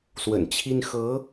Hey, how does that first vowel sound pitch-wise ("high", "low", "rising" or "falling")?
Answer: low